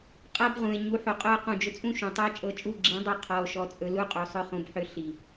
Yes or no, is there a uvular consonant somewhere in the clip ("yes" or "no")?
yes